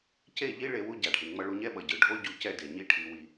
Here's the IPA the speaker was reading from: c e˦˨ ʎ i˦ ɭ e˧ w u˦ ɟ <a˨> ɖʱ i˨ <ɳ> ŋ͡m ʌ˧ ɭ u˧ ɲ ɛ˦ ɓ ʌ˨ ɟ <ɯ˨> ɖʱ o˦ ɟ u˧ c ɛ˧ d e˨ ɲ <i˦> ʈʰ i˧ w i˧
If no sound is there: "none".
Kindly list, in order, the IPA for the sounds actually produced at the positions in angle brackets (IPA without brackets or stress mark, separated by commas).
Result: a˨, ɳ, ɯ˨, i˦